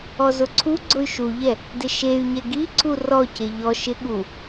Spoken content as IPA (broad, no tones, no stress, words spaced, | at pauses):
ɔzʊǀʰuɡ͡ǀʊy̯ ʃuʎɛ | dɪʃey̯ɲɛ ɡiǀu rɔce ʎɔ ʃɪ ɠu